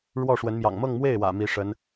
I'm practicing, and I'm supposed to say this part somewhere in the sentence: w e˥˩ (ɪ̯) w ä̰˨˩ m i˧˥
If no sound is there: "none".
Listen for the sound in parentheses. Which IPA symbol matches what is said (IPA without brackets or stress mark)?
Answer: ɪ̯